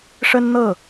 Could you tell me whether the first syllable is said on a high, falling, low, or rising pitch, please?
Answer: high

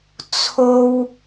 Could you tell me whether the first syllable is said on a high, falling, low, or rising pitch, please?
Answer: high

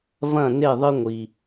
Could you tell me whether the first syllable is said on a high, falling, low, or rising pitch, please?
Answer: falling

